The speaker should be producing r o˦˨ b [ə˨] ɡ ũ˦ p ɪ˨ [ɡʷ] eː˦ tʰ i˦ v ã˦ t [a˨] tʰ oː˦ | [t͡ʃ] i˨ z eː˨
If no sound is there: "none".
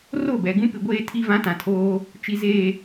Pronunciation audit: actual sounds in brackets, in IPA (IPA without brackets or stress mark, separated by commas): ɛ˨, ɡʷ, ã˨, t͡ʃ